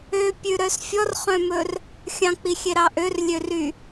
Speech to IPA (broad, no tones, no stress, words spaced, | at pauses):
øpʲʉɾœs fʲɔrχœ̃mɵr | xʲɑ̃k͡pixʲeɾɑ ʔørlʲøry